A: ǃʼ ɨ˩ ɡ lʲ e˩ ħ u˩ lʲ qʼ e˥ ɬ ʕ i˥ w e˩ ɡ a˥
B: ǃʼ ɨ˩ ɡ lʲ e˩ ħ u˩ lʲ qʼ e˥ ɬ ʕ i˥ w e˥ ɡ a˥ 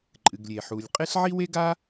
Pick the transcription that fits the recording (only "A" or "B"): B